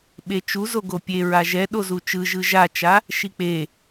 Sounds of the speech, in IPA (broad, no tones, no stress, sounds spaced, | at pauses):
ɓ e t͡ʃ u z o ɡ o pʲ e ɹ a ʒ ɛ ɗ o z u t͡ʃ ɯ ʒ ɯ ʒ a t͡ʃ a | ʃ i k͡p e